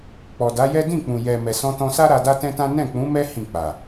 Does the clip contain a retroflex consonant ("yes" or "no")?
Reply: no